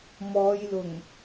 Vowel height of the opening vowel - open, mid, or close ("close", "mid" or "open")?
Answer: mid